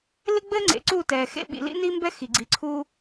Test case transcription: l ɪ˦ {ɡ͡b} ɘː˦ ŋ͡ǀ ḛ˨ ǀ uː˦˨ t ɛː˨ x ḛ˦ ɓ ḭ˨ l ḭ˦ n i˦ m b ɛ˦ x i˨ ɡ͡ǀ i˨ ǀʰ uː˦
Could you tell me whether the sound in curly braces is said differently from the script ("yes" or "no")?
no